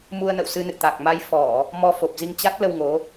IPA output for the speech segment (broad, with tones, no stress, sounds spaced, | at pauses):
m u˧ ə̯ n ə̰˧˨ w s ɨ˧ n ɨ̰˧˨ t̪ a˨˩ k̚ m a˧ j f ɔ˧˩˨ | m ɔ˧ f o˨˩ p̚ z i˧ ŋ t͡ɕ a˦˥ t̚ l ə˧ w ŋ o˨˦